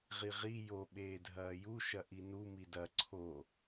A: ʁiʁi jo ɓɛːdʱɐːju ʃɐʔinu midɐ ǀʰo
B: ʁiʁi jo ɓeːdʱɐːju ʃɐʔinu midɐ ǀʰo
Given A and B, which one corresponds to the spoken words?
B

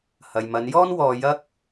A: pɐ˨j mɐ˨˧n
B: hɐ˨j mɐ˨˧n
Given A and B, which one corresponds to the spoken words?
B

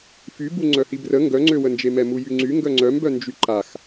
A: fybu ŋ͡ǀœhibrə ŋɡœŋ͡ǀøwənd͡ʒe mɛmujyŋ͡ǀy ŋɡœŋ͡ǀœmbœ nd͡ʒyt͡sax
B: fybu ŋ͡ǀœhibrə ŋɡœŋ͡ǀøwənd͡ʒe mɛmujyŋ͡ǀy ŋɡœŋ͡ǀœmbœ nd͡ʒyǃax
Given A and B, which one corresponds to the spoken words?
B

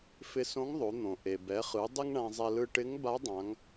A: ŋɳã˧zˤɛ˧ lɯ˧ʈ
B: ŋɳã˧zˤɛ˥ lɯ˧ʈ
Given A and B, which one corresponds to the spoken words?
A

